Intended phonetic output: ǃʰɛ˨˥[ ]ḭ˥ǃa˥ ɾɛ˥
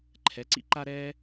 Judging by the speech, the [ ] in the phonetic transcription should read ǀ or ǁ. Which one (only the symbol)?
ǀ